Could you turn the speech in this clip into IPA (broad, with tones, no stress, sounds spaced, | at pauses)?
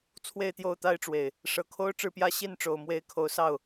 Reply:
t͡sʰ w e˥˨ ɪ̯ t̪ j o˥˨ ʊ̯ t̪ a˦ ɪ̯ ʈ͡ʂ w e˨˩ ɪ̯ | ʂ ɤ˨˩ kʰ o˦ ʊ̯ ʈ͡ʂ ɻ̩˥˨ p j ä˦ ɕ i˥˨ n ʈ͡ʂ o˨˩ ʊ̯ m w e˨˦ ɪ̯ kʰ o˨˦ ʊ̯ s ɑ˥˨ ʊ̯